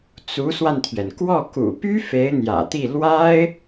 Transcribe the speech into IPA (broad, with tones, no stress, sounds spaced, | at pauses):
t͡s u˧˥ s w a˧ n t̪ʰ ɥ ɛ˩ n k w ɔ˥˩ k ṵ˨˩ p y˥ f e˧˥ ɪ̯ n̪ j ä̰˨˩ t̪ i˥˩ l w a˥ ɪ̯